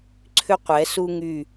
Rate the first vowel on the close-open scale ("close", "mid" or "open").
close